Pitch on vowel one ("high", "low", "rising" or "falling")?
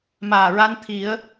low